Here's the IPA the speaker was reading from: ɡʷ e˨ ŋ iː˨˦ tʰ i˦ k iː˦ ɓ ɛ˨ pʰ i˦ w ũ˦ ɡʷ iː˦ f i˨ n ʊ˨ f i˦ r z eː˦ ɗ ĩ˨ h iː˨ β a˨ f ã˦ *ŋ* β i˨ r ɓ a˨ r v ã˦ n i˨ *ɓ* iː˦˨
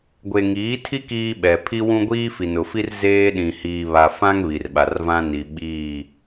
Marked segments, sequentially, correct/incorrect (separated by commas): correct, correct